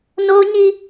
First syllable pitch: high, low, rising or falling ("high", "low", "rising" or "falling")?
high